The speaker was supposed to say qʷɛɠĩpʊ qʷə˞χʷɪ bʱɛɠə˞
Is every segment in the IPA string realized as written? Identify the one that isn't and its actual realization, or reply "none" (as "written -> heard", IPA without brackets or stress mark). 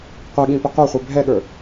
none